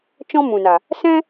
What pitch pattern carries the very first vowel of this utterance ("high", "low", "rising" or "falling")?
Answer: high